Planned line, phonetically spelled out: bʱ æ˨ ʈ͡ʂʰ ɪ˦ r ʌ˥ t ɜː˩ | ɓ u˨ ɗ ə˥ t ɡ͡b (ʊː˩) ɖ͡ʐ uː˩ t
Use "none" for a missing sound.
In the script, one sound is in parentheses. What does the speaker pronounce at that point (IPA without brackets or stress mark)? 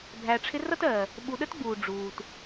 uː˩